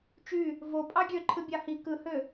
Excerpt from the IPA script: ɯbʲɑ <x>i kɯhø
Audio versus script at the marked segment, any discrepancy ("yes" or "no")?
yes